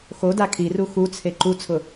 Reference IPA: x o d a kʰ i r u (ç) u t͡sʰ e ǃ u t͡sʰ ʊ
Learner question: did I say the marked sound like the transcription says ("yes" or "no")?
no